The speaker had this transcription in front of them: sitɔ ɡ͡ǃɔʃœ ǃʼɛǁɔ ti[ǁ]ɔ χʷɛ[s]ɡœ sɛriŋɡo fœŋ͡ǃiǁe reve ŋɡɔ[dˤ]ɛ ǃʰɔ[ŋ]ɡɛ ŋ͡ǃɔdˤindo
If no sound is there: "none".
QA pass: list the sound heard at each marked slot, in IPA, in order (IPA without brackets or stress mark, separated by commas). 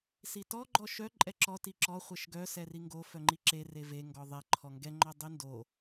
ǁ, ʃ, ðˤ, ŋ